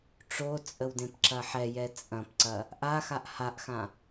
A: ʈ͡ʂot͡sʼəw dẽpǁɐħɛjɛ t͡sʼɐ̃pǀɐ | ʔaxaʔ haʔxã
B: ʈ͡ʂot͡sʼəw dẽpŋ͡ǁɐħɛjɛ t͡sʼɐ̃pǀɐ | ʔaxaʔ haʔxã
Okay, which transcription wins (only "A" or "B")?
A